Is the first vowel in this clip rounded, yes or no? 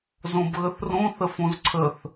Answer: yes